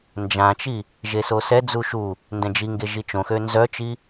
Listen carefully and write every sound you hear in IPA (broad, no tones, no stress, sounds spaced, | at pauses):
n d͡ʒ ã t͡ʃ i | ʒ e s o s ɛ d͡z u ʃ u | n d ɛ̃ d͡ʒ i ŋ ɡ e ʒ i t͡ʃ õ x ø n z œ t͡ʃ i